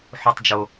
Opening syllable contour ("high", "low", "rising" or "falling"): low